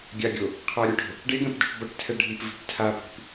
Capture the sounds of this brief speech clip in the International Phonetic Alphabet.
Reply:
ɡʲ a ɡʲ o | qʰ a ɾʲ u ʈ o̤ | ɖ e ɡ ɛ̃ p d o̤ ʈ b ʌ ʈ tʰ ɛ ɖʱ i p v i̤ p tʰ a p i̤ p

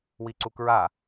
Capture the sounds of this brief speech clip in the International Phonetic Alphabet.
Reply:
w i ǀ u k ɹ a

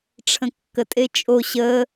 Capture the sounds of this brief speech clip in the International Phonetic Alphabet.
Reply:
ʈ͡ʂʰ ə̃ kː ə tʼ e t͡ʃʼ o ɕ ə

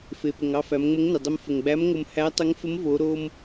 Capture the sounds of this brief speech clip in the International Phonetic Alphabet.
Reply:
f e˩ p ə˩ ŋ ɑ˧ f æ˩˧ m ŋ͡m ə˧˥ ŋ n ɪ˩ dˤ ə˧ m f ə˩ ŋ ɡ͡b æ˧˥ m ŋ o˧ m h æ˧˥ tˤ ɪ˧˥ ŋ f ə˧˥ m v o˩˧ ɾ o˧ m

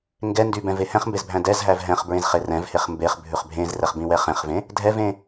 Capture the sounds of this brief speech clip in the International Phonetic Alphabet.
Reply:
ŋ ɡ ɛ n d y b ɛ̃ v e h ɛ̃ χ m b e z bʱ æ̃ d ɛ z ɦ æ v ɦ ɛ̃ χ b ɹ ẽ z χ e r ɛ̃ v h e χ m b e χ bʱ ʉ χ bʱ ẽ z r ɛ χ b ĩ w ɛ χ ẽ χ v ẽ | dʱ ɛ v ẽ

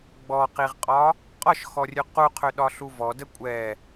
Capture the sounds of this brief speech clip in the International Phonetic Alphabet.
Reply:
ɡ͡b ɔ q i ʁ qʼ ɒ | qʼ ɒ ʃ x ɔ rʲ ʉ q u qʰ ø ɗ ɒ ɬ u v ɔ d ə kʷʼ ɛ

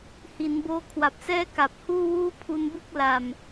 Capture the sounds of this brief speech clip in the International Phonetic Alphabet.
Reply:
h i˩˦ n b oː˦˥ kʰ w a˨˩ p̚ s ɛː˥˩ k a˨˩ p̚ h uː˥˩ w uː˥˩ pʰ u˧ n b ɯ˥˩ k̚ l a˨˩ m

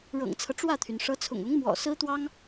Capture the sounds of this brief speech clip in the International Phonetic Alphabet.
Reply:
ɻ ɤ̰˨˩ ŋ t͡sʰ ɤ˦ ʈ͡ʂ w ä˥˩ t̪ʰ y˩ n ʂ ɤ˧˥ t͡sʰ ʊ̰˨˩ ŋ ʊ˧˥ ŋ m w ɔ̰˨˩ s ɹ̩˥ t̪ w ɑ˥ ŋ

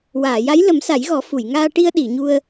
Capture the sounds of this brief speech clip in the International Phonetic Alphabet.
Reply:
w aː˨˩˨ j a˧˥ j l ə˨˩˦ m s a˨˩˦ j ɣ ɔ˨˩˦ f u˨˩˨ j ŋ aː˧ ʈ i˧ ə̯ ɗ i˨˩˨ ɲ u˧ ə̯

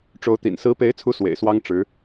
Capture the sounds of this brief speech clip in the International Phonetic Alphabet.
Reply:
ʈ͡ʂ o˧˥ ʊ̯ t̪ ḭ˨˩ n s ɹ̩˧˥ p e˧˥ ɪ̯ t͡sʰ u˧˥ s w ḛ˨˩ ɪ̯ s w ɑ˥ ŋ ʈ͡ʂ ɻ̩˧˥

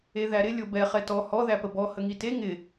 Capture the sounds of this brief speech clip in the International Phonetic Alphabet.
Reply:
e ð æ ɾ ɪ lʲ o b ɛ χ ɛ t ɔ h ɔ ð æ p ə b ɔ h ə ŋ i t e ŋ ɪ

